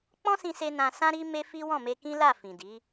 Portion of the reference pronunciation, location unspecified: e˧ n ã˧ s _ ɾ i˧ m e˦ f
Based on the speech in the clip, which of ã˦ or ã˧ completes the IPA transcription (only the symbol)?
ã˦